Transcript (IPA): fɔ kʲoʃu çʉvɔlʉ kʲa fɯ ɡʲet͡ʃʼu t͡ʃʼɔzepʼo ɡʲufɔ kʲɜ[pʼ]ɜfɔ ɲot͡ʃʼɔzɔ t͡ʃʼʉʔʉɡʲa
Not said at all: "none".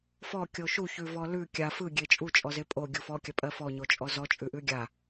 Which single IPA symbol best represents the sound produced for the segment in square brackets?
pʼ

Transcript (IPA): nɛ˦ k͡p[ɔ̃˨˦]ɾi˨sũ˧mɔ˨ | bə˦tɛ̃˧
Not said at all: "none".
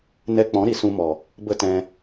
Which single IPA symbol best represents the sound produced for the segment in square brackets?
ɔ̃˨˦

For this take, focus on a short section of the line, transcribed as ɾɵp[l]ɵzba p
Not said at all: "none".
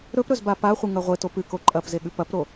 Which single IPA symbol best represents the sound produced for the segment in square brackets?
ɾ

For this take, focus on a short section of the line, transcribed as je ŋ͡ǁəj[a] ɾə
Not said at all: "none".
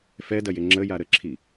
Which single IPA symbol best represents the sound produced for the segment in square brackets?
a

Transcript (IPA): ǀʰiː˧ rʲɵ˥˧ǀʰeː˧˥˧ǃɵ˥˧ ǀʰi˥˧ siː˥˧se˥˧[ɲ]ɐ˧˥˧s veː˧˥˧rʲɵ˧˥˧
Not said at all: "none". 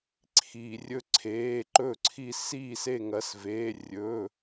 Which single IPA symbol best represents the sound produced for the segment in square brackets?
ŋ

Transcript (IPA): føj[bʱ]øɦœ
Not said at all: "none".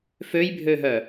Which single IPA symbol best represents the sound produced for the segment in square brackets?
bʱ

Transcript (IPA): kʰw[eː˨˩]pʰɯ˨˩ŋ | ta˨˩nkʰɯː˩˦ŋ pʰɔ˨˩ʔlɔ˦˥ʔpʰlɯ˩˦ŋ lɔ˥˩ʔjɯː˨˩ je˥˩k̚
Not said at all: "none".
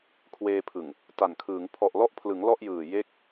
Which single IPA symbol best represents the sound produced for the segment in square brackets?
eː˧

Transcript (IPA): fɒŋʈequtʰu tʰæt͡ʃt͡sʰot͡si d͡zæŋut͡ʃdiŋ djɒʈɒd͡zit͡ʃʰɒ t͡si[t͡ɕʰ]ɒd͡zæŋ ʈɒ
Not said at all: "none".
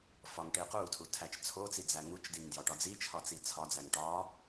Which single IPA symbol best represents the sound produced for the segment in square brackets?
t͡sʰ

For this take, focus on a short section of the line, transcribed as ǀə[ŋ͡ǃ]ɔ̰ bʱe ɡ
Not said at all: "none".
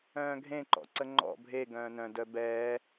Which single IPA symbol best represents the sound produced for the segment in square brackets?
ŋ͡ǃ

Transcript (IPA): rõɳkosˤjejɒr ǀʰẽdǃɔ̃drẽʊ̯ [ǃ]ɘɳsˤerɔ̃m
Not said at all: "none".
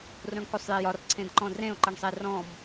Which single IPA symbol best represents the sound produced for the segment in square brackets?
ǃ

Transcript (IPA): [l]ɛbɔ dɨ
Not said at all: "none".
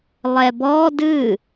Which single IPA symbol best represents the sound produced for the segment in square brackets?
lˠ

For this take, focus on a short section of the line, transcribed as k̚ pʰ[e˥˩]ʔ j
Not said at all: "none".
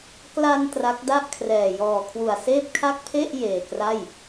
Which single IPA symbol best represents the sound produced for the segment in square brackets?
e˥˩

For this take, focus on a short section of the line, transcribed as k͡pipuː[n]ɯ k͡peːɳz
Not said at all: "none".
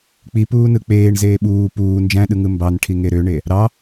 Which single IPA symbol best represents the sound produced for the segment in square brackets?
n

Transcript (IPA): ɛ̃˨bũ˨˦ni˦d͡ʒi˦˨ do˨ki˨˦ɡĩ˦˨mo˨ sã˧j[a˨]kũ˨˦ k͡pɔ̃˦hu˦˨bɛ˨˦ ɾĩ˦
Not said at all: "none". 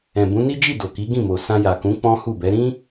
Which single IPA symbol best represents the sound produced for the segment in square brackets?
a˨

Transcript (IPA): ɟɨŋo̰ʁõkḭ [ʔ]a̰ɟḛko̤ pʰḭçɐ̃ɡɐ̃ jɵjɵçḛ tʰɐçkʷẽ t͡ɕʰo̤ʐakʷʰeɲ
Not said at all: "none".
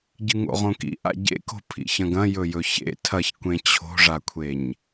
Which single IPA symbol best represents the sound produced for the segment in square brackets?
ʔ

